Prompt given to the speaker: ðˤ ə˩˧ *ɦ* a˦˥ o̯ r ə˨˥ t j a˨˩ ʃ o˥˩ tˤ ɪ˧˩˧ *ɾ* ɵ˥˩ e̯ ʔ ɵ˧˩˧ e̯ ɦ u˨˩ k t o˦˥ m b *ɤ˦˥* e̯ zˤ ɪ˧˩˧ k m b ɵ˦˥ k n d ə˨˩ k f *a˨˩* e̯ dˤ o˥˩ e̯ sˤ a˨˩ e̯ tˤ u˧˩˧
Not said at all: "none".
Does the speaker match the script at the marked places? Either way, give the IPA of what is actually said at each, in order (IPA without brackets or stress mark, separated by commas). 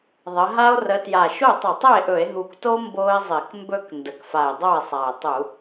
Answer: ɦ, tˤ, o˦˥, a˨˩